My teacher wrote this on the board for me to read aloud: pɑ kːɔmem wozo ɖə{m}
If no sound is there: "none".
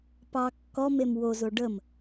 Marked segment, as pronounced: m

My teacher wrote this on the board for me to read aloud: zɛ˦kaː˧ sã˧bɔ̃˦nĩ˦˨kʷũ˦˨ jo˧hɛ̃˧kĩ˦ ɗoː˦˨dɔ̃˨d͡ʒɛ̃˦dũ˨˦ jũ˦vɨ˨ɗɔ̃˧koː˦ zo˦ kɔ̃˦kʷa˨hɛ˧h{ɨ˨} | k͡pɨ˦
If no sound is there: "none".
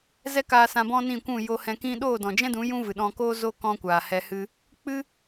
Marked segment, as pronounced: ɨ˦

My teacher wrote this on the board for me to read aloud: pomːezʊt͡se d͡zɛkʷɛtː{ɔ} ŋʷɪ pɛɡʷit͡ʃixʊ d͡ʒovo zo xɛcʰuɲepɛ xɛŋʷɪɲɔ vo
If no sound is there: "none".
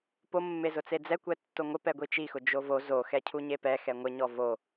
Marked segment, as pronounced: o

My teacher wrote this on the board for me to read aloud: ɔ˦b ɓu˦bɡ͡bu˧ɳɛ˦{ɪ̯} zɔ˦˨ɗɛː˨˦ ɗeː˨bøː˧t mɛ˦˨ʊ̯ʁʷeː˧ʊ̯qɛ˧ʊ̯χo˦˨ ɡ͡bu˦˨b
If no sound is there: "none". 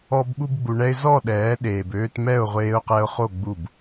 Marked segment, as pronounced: ɪ̯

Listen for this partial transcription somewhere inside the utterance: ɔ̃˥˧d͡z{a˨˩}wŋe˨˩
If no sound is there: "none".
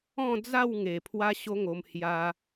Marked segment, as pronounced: a˥˧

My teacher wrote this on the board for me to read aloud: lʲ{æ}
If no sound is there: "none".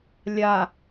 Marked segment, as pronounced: a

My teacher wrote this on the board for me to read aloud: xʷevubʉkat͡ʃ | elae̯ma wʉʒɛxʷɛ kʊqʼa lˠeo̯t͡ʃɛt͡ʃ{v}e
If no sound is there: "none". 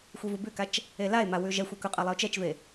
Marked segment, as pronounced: v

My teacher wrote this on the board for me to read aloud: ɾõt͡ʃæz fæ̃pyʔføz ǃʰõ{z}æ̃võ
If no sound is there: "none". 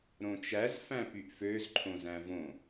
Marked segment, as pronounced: z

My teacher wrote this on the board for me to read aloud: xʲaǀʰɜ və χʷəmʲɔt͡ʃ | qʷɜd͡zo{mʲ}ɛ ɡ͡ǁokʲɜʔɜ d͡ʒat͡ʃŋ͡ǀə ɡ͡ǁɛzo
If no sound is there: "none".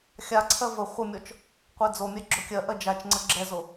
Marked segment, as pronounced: mʲ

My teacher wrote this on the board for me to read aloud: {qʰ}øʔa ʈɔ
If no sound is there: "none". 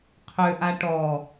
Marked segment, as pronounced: qʰ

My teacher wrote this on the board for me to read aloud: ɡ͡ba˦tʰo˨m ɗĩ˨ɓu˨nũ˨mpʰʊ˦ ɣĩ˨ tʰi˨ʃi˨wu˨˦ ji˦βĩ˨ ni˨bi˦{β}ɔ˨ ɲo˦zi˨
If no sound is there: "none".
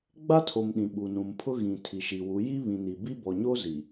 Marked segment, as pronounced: b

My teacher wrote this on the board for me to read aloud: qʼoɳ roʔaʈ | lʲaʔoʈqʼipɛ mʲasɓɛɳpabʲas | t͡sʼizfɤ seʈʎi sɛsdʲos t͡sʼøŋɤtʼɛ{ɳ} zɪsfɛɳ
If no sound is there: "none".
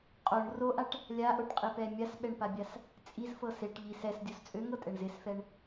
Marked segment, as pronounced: ɳ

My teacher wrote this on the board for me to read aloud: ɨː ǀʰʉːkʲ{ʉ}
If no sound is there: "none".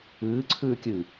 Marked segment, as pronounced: ɨ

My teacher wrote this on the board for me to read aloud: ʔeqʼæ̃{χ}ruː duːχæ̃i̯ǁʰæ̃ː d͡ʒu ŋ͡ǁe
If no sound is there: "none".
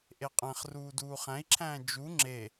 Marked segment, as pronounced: χ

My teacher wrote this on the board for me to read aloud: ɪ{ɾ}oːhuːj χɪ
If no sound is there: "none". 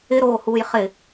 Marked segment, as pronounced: ɾ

